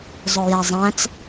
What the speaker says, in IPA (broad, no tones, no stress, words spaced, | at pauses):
zˤʊjæzˤæ̃t͡s